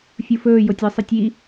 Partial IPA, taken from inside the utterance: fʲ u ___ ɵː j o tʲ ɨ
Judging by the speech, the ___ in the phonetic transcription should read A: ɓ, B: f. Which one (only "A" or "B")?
B